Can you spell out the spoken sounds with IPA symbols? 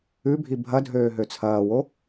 ʉ bʱ i bʱ ɐ dʱ øː ɦ ø t͡sʰ ɐː w o

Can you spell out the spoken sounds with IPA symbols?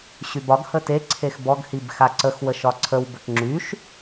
ɕ y b ɒ ɡ h ə t e ǀʰ e x b ɔ ɡ h i b x a ǀ ə x w ə ʃ ɒ ǀʰ ə w b ə k ŋ͡ǁ y ʃ

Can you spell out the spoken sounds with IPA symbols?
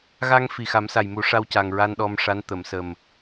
ɣ a˧ ŋ f i˨˩ x a˨˩˦ m s a˨˩ j m u˨˩˦ ʂ a˧ w c a˨˩ ŋ ɹ a˧ n ɗ ɔ˧ m ʂ a˧˥ n t̪ ə˨˩˨ m s ə˨˩ m

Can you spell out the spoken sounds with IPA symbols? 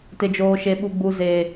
t ɪ˨ d͡ʒ oː˨ ʃ e˨ ɓ u˨ ɡ͡b u˨ z e˨

